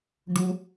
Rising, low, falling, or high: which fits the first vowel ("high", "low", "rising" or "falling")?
high